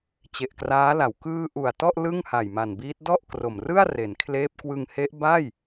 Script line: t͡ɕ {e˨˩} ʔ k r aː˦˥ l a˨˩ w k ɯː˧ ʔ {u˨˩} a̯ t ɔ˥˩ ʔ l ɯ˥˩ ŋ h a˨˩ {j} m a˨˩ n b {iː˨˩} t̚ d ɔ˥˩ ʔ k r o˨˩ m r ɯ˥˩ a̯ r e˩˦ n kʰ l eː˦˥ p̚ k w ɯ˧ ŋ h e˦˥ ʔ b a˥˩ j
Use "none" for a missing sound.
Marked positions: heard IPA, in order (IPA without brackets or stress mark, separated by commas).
e˨˩, u˨˩, j, iː˦˥